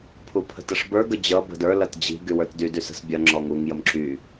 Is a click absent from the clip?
no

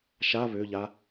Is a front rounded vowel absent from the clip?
no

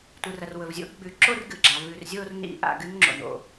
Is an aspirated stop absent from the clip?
yes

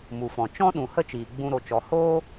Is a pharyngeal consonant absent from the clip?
yes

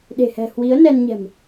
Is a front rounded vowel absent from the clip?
yes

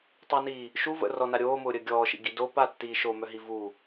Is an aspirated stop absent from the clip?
yes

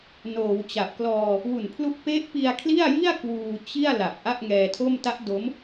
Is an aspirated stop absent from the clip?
no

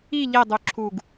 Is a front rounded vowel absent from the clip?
no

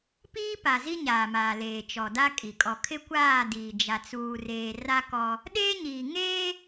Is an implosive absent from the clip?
no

